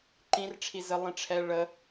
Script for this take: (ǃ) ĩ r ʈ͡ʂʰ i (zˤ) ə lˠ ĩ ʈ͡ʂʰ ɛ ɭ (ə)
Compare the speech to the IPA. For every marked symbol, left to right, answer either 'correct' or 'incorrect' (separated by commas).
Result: correct, incorrect, correct